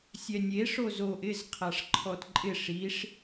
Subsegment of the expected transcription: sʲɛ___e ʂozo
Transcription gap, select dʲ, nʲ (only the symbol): nʲ